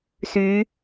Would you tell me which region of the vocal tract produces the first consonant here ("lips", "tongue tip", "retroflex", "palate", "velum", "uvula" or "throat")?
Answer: tongue tip